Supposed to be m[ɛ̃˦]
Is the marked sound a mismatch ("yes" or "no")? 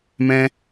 no